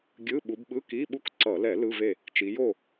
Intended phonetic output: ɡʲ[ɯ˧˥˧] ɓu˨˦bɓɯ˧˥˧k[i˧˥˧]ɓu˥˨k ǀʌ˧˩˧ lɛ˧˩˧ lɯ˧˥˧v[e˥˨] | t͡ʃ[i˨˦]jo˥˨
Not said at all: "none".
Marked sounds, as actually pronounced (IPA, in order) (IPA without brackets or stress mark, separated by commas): ɯ˧˥˧, i˧˥˧, e˥˨, i˨˦